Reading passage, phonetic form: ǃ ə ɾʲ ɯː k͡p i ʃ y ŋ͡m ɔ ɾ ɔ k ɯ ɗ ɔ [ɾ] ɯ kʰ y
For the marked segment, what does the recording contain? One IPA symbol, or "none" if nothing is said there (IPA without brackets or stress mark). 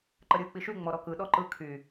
ǃ